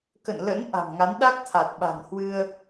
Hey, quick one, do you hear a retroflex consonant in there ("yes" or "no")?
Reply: no